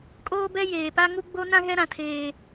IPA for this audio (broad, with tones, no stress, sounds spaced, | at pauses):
kʼ oː˦ b ɛ˦ j eː˨ p a˦ ŋ u˦ ɡ͡b o˦ n ã˦ ɣ ɛ˦ ɾ ã˦ tʰ eː˦